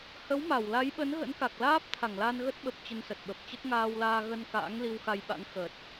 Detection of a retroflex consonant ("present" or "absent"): absent